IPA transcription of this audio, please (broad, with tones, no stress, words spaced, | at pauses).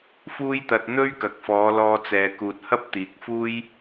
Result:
fuː˥jt̪ɐ˧t̚ n̪ɵ˥ɥkɐ˨k̚fɔː˨˧lɔː˧ t͡sɛː˨kuː˨t̚ hɐ˥p̚t̪iː˨k̚fuː˥j